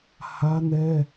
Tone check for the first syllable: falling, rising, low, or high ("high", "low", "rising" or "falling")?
high